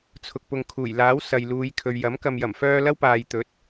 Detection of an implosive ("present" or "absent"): absent